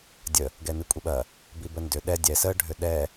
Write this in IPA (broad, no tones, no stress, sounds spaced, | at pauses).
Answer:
dʲ ə | ɡ ɛ n ɨ kʷʼ i ɓ ɐ | b i b ə n d ʏ ɗ ɛ dʲ ɛ s ə ɖʱ ʏ ɗ ɛ